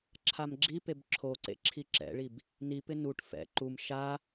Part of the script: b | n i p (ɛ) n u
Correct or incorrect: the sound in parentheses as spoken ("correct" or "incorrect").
incorrect